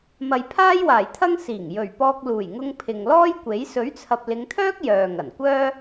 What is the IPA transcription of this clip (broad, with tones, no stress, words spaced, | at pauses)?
mɐ˨jpʰaː˥jwaː˨˩jt̪ʰɐ˥ŋ siː˨˩ŋ jɵ˨˩ɥpɔː˧k̚ luː˨˩jŋʊ˧ŋ pʰɪ˨ŋlɔː˥jkʷe˨˥j sɵ˨˥ɥt͡sʰɐ˨p̚lɪ˨˧ŋt̪ʰœː˥k̚ jœː˨ŋɐ˨˩n kʷœː˥